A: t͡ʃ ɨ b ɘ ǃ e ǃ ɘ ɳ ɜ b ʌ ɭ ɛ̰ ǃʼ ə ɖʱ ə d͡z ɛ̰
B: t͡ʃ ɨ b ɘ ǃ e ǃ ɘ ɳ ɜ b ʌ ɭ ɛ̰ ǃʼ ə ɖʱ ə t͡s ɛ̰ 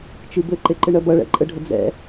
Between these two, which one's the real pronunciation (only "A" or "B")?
A